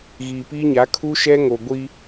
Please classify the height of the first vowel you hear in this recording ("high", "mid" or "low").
high